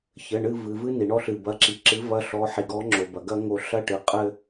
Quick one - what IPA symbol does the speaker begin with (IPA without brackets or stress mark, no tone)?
ç